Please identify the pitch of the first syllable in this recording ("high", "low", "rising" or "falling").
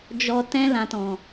low